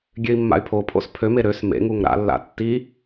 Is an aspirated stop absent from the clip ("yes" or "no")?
no